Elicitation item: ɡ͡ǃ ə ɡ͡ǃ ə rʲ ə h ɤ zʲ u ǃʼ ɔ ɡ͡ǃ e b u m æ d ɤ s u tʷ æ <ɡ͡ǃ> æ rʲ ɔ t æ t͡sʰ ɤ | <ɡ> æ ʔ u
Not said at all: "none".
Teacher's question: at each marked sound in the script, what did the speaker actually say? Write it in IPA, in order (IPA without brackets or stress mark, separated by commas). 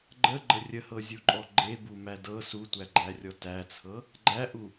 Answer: ɡ͡ǃ, ɡ͡ǃ